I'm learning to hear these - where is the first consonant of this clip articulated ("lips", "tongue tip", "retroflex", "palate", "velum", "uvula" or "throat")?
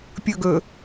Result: lips